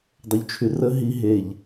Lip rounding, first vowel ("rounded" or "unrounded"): rounded